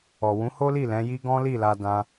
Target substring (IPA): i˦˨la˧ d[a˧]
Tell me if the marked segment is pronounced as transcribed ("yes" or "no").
no